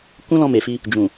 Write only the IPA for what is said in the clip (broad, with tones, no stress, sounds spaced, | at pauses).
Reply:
k ũ˦ l ɔ̃˧ m e˨ f i˧ | d͡ʒ ũ˨